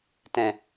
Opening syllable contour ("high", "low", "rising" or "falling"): low